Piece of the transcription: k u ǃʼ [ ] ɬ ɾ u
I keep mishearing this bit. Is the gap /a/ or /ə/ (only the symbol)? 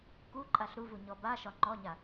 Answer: a